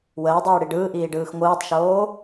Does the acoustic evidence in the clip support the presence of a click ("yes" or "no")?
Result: no